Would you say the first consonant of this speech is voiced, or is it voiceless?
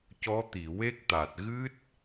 voiceless